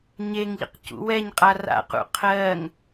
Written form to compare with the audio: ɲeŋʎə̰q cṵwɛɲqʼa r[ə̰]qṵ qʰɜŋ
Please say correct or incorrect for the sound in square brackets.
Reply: incorrect